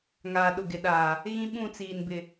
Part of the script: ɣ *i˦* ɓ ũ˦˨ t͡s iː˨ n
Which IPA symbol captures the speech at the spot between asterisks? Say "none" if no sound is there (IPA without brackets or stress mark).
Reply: ĩ˦